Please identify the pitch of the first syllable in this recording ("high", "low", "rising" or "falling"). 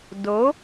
rising